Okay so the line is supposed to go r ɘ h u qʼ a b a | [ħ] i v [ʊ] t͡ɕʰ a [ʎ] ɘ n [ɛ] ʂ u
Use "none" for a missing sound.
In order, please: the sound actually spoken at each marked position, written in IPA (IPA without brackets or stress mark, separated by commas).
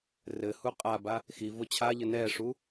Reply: x, ʊ, ʎ, ɛ